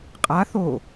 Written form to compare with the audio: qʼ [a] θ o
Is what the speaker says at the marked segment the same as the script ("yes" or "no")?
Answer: yes